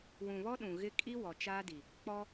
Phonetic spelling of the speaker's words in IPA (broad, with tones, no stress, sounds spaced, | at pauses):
w ũ˨ β ɔ˦ ɗ ũ˨ ɣ ɪ˦ kʼ i˦ w ɔ˨ t͡ʃ aː˦ d i˨ | k͡p ɔ˦